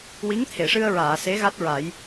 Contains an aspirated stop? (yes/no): yes